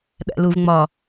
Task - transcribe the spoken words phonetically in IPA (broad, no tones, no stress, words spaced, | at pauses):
ɗæ̰luv ŋ͡mɒ